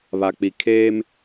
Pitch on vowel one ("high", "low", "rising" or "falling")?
low